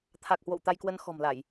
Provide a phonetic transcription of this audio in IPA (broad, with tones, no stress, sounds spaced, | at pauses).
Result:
t̪ʰ a˨˩ k̚ h w o̰˧˨ w t̪ a˧ j k w ə˧ n x ɔ̤˨˩ m l a˧˩˨ j